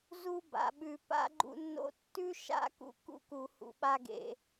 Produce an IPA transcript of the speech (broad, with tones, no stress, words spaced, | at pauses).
zu˦ba̰˨ɓʉ˨ pa̰˦ɡ͡ǃṵ˦nːo̰˦ tːʉ˦ʃa̰˦kṵ˧ kṵ˦ku˨ hṵ˨ɓa˧ɡḛ˨